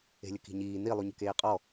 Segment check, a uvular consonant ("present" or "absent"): present